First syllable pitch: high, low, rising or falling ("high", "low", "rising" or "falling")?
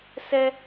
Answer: high